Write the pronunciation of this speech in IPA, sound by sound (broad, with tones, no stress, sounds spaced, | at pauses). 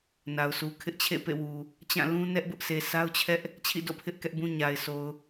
n a˨ ʊ̯ s u˨ kʰ ɪ˦ ʔ t͡ɕʰ ḛ˦˨ p ḛ˦˨ w u˨ | t͡ɕ ã˦˨ l ũ˦ n ɛ˦ ʔ b ʊ˦ ʔ sʰ e˨ sʰ a˦ ʊ̯ t͡ɕʰ ɛ˦ ʔ | t͡ɕʰ ḭ˦˨ d o̰˦˨ pʰ ɪ˦ ʔ k ɛ˦ ʔ b ũ˦ ɲ a˨ ɪ̯ s o˨ ʊ̯